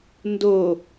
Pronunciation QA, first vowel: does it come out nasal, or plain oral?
oral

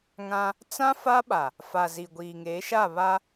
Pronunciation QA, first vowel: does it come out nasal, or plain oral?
nasal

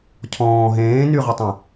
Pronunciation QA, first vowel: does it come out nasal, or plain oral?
nasal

